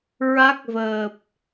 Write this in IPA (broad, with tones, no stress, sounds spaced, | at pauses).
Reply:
ɹ a˦˥ k̚ v əː˨˩ p̚